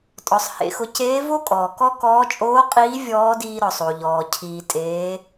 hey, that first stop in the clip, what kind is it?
ejective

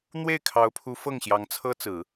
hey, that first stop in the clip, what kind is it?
aspirated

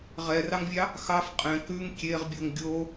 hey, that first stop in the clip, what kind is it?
ejective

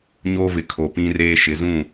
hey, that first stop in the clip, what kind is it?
aspirated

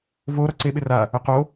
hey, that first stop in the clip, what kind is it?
click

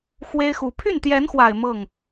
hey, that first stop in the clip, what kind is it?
aspirated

